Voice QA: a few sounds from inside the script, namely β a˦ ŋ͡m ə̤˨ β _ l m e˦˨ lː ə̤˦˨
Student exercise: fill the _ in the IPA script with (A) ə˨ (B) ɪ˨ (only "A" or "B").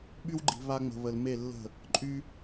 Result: A